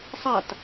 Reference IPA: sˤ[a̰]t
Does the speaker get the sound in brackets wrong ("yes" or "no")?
yes